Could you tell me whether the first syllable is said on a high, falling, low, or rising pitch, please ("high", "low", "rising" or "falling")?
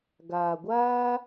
low